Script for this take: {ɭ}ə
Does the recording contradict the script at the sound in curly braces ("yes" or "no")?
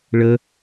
no